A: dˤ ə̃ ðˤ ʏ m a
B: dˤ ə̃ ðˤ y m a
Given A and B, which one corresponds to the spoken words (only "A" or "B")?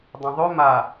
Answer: A